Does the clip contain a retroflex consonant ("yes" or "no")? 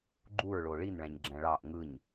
yes